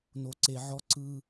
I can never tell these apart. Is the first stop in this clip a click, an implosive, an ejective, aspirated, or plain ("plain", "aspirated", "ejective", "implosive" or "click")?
click